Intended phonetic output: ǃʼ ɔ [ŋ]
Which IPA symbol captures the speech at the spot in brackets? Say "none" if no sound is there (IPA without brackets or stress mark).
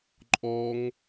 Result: ŋ